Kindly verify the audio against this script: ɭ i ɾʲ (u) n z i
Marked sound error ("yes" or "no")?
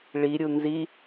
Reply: no